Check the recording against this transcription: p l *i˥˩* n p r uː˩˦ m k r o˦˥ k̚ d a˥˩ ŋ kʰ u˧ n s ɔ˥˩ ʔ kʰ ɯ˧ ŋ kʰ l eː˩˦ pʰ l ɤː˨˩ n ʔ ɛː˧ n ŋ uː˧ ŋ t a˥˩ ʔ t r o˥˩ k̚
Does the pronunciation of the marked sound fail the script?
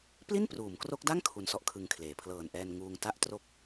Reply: no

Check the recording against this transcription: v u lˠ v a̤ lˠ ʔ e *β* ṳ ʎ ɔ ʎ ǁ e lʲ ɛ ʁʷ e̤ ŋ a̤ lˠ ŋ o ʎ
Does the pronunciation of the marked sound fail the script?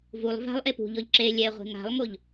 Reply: yes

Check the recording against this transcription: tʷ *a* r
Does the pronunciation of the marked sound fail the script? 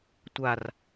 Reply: no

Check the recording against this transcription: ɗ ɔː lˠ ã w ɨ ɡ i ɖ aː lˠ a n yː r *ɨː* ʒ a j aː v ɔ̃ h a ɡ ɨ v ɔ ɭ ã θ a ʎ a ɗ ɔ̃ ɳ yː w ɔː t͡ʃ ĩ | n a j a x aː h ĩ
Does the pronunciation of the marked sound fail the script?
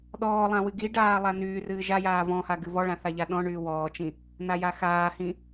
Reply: no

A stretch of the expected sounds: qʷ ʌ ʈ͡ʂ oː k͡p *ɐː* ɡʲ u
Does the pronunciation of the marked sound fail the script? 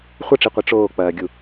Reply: no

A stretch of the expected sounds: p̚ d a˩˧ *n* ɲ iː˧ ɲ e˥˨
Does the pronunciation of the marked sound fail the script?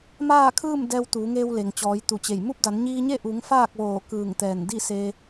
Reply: no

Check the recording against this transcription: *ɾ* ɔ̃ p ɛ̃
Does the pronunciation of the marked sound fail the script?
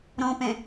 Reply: no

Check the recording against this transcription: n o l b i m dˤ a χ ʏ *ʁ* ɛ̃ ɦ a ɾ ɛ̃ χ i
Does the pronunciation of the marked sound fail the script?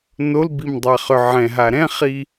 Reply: yes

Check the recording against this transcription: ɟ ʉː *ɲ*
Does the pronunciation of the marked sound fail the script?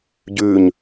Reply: no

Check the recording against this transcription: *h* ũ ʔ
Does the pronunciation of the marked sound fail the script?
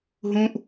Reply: yes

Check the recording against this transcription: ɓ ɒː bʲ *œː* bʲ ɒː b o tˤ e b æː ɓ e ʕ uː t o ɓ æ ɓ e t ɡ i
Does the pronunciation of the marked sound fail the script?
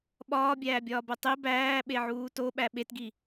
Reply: yes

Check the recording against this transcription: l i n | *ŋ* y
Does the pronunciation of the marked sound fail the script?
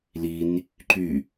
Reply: yes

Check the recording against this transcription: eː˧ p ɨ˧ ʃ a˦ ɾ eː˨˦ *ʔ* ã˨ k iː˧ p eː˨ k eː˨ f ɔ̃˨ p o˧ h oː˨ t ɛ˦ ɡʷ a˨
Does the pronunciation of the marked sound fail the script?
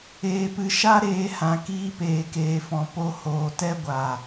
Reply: yes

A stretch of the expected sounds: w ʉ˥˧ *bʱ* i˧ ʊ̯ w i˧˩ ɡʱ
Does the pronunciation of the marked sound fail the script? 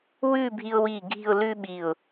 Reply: no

